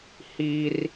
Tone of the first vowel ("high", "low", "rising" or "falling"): high